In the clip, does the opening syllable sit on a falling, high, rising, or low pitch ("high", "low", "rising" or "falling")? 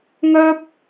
high